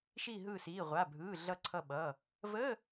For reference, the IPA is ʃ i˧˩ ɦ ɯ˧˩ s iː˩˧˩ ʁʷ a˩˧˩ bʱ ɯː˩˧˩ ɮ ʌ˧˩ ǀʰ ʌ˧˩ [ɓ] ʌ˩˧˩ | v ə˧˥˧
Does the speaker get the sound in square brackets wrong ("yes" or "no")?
no